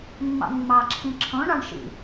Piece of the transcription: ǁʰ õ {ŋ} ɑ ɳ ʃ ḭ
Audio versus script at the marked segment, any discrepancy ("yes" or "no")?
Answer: yes